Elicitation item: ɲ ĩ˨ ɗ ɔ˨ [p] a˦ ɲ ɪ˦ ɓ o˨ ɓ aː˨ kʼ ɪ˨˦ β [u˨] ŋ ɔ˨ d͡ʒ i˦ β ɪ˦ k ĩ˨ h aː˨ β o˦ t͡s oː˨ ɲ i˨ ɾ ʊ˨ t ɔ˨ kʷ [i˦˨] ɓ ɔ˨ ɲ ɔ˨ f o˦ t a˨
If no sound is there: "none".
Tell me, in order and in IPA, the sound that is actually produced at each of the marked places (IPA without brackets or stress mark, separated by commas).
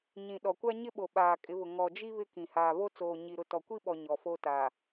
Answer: kʷ, ʊ˨, i˦